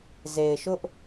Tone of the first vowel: low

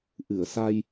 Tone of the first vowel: low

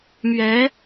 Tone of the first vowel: rising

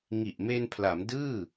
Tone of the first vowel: low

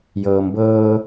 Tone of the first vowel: low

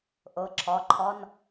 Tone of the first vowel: rising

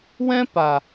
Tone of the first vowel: high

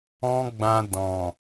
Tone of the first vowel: high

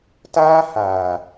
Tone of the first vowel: high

